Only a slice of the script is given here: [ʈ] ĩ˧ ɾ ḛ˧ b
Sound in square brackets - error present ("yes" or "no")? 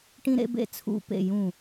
no